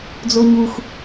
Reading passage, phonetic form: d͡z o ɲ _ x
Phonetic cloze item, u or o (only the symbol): u